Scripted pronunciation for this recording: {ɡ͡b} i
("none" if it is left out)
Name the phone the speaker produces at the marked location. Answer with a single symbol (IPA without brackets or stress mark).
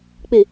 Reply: k͡p